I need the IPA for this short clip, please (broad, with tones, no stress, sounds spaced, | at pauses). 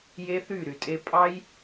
j e˦ θ y˦˨ ɾ y˨ tʼ e˧ pʼ ɑ˦ j